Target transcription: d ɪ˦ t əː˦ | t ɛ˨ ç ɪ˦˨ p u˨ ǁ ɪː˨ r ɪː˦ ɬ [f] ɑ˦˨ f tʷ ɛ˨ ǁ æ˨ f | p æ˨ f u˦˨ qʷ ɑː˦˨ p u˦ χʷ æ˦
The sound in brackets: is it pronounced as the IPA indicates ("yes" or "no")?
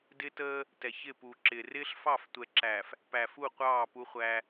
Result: yes